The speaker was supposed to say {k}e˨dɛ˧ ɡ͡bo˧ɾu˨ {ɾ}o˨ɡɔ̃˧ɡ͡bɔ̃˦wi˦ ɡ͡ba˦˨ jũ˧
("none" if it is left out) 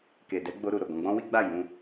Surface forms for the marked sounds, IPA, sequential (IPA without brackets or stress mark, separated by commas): k, ɾ